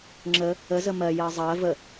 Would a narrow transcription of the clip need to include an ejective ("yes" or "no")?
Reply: no